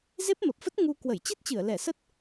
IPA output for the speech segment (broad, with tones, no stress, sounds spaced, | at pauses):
z e˦˥ p̚ m ə˨˩ p̚ f ə˦˥ t̚ ŋ u˧ k w ə˧˩ j t͡ɕ i˦˥ t̚ t͡ɕ ɨ˧˩ ə̯ l ɛ˧˩ s ə˦˥ t̚